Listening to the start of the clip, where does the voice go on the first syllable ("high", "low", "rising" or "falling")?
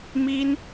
high